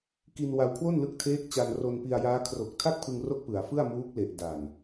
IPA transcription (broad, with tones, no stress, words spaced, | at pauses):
ki˧nwa˧wkʰwo˥˩n lɯ˦˥k̚tʰeː˦˥k̚t͡ɕa˧n ro˧npi˧a̯jaː˦˥ kʰro˨˩k̚tʰa˥˩k̚pʰɯ˧ŋ ro˥˩k̚pɯ˩˦a̯fɯ˥˩a̯ muː˦˥k̚le˨˩ʔ da˨˩n